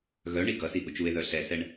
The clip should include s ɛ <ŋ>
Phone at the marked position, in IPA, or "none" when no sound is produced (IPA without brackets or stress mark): ɳ